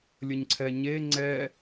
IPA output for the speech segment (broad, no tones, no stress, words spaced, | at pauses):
lʲəɲǀʰɛɲe ŋ͡ǀɛ